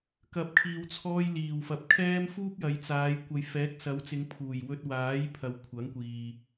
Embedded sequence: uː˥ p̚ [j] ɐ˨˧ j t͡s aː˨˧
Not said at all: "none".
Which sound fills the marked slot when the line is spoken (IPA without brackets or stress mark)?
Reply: j